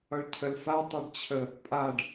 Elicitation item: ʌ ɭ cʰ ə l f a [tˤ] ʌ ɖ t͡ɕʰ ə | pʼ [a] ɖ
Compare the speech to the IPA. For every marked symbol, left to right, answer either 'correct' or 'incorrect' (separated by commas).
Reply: correct, correct